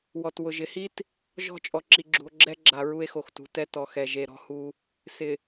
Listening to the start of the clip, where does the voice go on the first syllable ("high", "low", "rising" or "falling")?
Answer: low